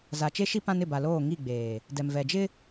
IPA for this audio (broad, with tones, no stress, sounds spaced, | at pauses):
z a˨ t͡ʃ e˦ ʃ i˦ p ã˦ n ɪ˦˨ b a˨ l oː˦˨ ŋ i˦˨ ɡ͡b eː˨ | d ɛ˨ m v ɛ˨ d͡ʒ ɪ˦